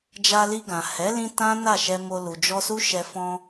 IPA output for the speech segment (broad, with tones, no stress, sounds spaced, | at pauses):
d͡ʒ a˧ l i˧ ɡ ã˨ h ɛ˨˦ l ĩ˧ t ã˦ n a˦˨ ʃ ɛ˧ m o˧ l u˨ d͡ʒ ɔ˧ s u˦ ʃ ɛ˧ f ɔ̃˧